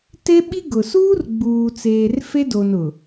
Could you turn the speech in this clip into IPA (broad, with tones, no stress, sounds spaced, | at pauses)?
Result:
t e˦ ɓ i˦ ɡ ʊ˨ s uː˦ r ɡ͡b uː˨ t͡s eː˨ r f e˦ d o˨ n ʊ˨